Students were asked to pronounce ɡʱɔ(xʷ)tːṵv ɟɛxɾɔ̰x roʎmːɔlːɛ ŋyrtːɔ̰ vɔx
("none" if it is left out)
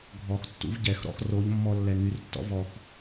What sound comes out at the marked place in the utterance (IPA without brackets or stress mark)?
x